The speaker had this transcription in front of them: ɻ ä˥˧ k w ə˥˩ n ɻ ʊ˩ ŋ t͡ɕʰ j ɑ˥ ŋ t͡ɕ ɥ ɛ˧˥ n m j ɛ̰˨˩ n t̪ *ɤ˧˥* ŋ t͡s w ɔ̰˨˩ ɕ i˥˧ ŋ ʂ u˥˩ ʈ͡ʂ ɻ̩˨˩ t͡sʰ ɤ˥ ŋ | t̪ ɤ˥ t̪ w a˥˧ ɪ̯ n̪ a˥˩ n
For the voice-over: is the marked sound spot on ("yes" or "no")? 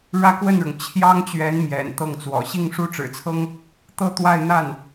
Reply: no